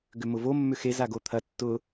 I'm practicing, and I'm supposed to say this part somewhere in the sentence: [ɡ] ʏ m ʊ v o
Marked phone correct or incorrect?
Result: correct